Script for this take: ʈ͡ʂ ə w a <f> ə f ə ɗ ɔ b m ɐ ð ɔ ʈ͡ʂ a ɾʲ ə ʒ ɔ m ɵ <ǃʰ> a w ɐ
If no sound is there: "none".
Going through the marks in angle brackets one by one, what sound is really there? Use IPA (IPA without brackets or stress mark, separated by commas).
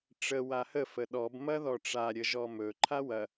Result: h, ǃʰ